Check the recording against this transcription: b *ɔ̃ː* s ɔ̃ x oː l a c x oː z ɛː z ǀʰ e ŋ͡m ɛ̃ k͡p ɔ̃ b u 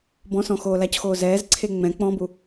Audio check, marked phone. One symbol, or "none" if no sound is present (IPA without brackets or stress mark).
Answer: ɔ̃